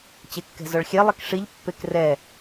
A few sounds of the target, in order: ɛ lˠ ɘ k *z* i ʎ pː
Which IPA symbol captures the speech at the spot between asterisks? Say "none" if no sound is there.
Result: ʂ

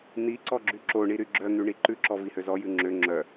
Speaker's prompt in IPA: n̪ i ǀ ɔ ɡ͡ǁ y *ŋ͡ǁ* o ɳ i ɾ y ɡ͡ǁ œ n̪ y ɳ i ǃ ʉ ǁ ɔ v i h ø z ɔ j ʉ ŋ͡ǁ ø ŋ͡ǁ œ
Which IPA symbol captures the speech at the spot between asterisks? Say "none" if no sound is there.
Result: ǁ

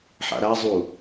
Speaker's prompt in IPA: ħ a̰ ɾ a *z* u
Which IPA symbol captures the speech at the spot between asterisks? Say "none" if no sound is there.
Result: zˤ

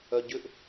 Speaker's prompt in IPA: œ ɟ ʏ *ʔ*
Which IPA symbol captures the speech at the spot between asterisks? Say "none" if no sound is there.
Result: ʔ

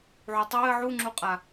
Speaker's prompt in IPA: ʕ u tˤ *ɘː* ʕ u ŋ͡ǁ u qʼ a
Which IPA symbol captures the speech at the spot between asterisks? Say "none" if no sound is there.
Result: ɘː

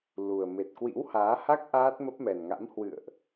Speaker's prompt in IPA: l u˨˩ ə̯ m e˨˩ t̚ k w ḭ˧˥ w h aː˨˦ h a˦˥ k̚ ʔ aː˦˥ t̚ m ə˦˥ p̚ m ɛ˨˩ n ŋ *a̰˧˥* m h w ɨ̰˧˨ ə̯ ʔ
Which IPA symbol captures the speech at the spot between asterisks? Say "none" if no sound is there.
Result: a̰˧˥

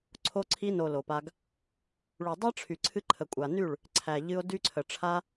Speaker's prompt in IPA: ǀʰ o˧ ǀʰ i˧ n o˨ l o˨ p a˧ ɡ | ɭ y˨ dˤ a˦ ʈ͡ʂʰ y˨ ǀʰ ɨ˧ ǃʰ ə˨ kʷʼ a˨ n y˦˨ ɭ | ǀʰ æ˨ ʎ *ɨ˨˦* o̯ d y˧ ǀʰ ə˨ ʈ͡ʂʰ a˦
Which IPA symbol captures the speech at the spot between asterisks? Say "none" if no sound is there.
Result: ɨ˧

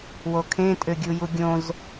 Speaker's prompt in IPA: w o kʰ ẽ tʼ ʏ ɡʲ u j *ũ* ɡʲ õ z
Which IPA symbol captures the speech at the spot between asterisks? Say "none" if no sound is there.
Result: u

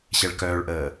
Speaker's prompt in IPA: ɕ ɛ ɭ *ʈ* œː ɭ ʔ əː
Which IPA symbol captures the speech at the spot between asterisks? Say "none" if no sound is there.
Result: k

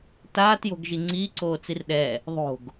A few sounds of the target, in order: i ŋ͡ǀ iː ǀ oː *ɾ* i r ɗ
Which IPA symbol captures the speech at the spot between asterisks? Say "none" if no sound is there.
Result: t͡s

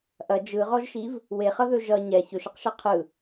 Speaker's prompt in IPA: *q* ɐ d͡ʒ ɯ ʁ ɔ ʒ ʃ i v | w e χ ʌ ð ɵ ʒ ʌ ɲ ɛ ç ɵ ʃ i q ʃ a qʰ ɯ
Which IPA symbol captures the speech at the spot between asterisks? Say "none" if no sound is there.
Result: ʔ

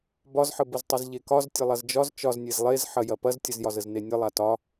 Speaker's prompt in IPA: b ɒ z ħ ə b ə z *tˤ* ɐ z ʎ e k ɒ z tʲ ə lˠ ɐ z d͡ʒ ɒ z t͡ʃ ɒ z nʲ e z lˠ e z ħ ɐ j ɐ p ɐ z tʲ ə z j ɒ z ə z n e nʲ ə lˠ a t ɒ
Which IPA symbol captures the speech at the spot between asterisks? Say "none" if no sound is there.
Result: tˤ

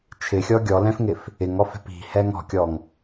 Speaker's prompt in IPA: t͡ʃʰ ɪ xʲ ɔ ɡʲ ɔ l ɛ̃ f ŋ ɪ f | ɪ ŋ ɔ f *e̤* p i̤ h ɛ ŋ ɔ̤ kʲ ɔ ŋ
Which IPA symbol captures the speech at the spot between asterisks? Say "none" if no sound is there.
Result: ɛ̤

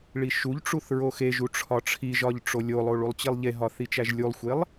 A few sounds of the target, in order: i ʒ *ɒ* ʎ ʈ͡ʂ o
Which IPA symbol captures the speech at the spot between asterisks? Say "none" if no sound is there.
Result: ɒ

